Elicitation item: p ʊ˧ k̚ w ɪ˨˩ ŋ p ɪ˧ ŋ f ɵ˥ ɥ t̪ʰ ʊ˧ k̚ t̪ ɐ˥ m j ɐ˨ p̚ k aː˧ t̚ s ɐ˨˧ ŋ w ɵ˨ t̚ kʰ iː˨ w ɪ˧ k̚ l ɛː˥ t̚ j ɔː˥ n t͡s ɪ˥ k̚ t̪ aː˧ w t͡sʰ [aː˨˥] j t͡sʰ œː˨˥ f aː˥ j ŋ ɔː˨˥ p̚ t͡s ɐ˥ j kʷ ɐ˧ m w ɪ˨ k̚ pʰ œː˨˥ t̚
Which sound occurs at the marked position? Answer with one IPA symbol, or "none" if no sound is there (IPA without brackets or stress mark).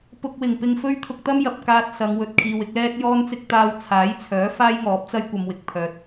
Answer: aː˨˥